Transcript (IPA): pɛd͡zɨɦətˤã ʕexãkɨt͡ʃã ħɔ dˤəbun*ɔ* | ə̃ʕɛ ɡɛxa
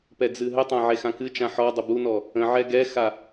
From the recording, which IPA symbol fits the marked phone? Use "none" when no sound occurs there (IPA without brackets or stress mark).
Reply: ɔ